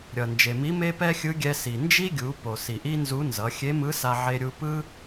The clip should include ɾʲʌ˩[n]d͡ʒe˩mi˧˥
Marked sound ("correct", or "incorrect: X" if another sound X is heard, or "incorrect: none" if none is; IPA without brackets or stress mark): correct